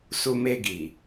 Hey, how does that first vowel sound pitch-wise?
high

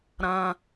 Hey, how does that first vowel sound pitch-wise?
low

